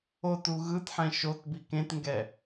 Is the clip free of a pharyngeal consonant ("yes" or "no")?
no